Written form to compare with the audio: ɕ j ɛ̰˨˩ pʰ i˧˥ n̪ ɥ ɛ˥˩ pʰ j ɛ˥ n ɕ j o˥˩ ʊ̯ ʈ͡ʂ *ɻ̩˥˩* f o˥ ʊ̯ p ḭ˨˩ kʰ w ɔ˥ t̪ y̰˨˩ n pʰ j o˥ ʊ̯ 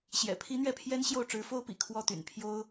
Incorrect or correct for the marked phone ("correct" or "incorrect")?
incorrect